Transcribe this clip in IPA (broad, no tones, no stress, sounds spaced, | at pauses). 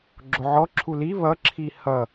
ɡ͡ǁ o ʕ ɔ ǁʰ u l i β ʌ ǁʰ i h ʌ